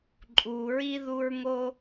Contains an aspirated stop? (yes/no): no